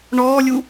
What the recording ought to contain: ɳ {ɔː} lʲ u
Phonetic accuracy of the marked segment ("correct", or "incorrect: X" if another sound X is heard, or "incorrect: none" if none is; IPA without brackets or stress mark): correct